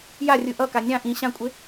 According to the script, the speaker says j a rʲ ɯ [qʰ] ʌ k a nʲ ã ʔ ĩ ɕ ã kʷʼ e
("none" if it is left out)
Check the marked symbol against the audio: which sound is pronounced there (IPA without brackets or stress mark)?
ʔ